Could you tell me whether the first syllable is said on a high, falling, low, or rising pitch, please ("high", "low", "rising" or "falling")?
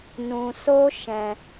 low